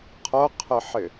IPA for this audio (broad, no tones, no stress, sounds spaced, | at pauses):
qʰ ɤ qʰ ɘ ħ ɪ